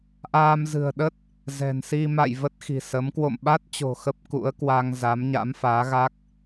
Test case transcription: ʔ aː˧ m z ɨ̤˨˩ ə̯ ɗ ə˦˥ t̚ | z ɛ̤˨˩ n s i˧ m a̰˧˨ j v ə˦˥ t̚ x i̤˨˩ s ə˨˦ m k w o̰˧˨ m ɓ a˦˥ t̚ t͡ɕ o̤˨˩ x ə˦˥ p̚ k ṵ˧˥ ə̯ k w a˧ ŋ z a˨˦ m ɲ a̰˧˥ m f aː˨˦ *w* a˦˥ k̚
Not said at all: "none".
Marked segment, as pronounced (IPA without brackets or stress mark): ɣ